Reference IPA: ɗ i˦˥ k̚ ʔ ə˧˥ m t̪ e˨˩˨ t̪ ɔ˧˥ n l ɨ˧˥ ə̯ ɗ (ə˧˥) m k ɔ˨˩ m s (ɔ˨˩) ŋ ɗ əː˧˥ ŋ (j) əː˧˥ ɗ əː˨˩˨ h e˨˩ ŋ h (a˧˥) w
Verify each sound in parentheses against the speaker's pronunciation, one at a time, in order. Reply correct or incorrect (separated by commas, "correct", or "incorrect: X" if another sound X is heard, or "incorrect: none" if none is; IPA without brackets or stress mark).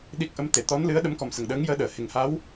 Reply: correct, incorrect: ə˨˩, correct, correct